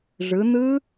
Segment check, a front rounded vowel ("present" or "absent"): absent